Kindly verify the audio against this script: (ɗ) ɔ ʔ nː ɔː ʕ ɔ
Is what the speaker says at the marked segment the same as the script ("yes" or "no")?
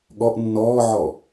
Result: no